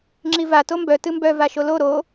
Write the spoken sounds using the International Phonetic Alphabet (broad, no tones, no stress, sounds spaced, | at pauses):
ŋ͡ǁ i v a t o m b œ t ɨ m b œ v a ʃ o l o ɾ o